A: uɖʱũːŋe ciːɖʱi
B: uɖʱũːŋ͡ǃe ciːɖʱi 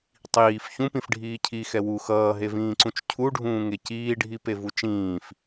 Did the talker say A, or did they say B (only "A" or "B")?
A